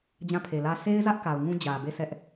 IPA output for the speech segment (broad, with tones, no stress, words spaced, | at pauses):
d͡ʑã˦˨pʰe˨lä˦ sʰe˦ɪ̯zä˦ʔ ka˨ʊ̯ ŋũ˦d͡ʑä˨be˦˨ sʰɛ˦ʔ